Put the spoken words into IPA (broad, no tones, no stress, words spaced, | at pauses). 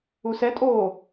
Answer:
usɛtʼoː